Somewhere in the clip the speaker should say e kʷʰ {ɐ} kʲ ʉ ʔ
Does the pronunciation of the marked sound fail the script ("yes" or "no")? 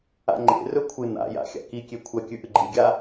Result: no